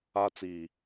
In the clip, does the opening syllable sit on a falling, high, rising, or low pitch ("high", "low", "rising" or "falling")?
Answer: high